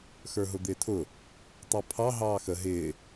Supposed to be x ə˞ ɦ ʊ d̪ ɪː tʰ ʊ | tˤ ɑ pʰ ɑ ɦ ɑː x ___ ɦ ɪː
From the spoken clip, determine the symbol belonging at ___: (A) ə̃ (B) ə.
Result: B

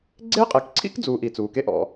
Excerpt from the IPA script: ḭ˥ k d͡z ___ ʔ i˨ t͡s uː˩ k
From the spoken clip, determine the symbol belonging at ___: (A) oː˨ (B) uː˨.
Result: B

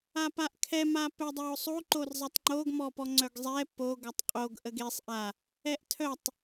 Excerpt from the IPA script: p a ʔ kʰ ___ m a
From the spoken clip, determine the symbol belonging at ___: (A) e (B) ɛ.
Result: B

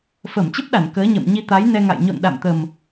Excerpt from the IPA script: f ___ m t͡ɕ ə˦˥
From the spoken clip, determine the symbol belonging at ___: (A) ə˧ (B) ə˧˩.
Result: B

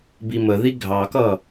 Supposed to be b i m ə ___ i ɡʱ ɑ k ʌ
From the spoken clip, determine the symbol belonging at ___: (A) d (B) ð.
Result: B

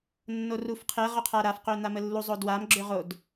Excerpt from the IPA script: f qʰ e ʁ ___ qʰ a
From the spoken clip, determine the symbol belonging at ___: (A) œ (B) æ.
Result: A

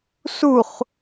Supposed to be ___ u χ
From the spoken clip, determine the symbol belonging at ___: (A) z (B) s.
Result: B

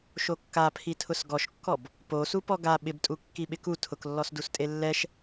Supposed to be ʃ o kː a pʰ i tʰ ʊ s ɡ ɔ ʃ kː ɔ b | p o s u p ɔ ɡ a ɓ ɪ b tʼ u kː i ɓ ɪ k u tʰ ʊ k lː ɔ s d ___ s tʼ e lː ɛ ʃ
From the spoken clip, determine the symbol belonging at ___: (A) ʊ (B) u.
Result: B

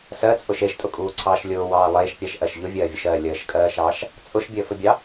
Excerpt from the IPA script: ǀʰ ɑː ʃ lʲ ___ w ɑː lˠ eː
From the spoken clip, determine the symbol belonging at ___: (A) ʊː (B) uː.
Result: A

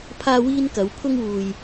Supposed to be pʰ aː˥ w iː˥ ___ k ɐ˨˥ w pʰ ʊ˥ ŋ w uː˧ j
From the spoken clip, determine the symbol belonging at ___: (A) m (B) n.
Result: B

